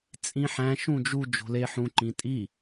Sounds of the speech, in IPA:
t͡sʼĩħæ̃ ʃũd͡ʒu d͡ʒo̤le ħũ ǃĩtʼi

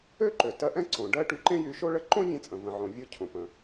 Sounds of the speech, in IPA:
ø˥ǃø˩ tɜ˧ʔɛ̃˥ ǀõ˩ ɖɜ˥ ʈy˧ǃẽ˥jy˧ ʃo˥ɭə˥ ǃõ˥vʲẽ˧t͡sʼə̃˩ və̃˩ʕõ˩ vʲo˧ cʰõ˩pə̃˩

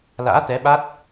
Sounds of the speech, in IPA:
la̰ː˧˥t̪ɛ˨˦ɓa˦˥t̚

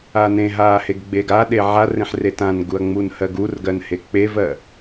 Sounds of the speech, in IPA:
anẽɦaː heɡɡ͡beɡaɗe ʕarẽħ retãnɡuɐ̯ ŋ͡munhɜɡurɡɜn hek͡pevɜ

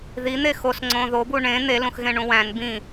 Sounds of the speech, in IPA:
ðin̪e xosŋ͡ǀõ ðobu ɳẽ n̪elũxɣẽɳũ wæ̃n bĩ

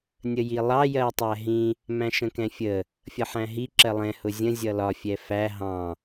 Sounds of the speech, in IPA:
nʲəjilˠɑ jɜtˤæɦĩ | mæ̃ʃə̃kɛ̃fʲə | fʲʌħæ̃ɦi ǁɜlˠɛ̃ hʊzʲə̃ zʲʌlɒ fʲɛfæ ɦɑ̃

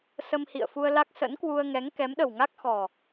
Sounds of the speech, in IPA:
sə˧mhḭ˧˨ə̯fu˧ə̯la˦˥k̚ sə̰˧˥n kwu˧ə̯ŋɛ˨˦ŋ kɛ˨˦mɗə˨˩wŋa˦˥k̚xɔ˨˩

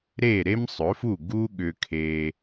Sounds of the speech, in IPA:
ɾe˥˩ ɾe˥msˤɵ˩˥fu˥˩ ɡu˥ɠʏ˧kʰe˧

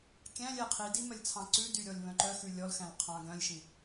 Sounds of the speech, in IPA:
kʲæ̃lʲɛ qʰidi mœlʲt͡sʰɑ̃ǀʉdy ɾʲɔlʲβœ̃ǃœxʉ lʲɔlxæ̃l qʰɑ̃ ɡœ̃lʲʃĩ

